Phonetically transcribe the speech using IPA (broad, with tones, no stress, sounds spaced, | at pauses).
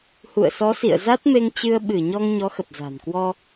h ṵ˧˨ ə̯ s ɔ˨˦ s ḭ˧˨ ə̯ z a˦˥ t̚ m e˧ ŋ t͡ɕ ɨ˧ ə̯ ɓ ɨ˧˩ ɲ ɔ˧ ŋ ɲ ɔ˨˦ x ə˨˩ p̚ z a̤˨˩ n k w ɔ˧